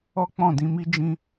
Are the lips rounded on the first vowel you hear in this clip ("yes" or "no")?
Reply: yes